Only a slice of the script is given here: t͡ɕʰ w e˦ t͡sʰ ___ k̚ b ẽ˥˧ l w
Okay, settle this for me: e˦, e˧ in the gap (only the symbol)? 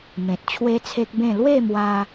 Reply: e˦